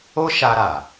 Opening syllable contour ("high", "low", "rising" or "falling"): high